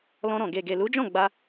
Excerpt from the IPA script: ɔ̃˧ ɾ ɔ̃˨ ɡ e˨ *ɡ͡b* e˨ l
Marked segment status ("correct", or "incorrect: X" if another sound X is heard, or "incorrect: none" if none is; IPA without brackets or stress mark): incorrect: ɡ